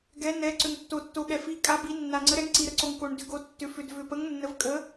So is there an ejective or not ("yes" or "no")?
yes